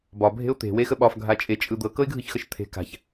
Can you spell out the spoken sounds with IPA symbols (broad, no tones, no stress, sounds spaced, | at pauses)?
b ɒ bʱ e̤ ʊ̯ t̪ e̤ w e x ə ɓ ɒ f ɡʱ a t͡ʃʼ e t͡ʃʼ ɯ d̪ ɤ k ɤ ɪ̯ ɡʱ ɯ ç x ə ʃ t̪ʰ e̤ k a̤ ç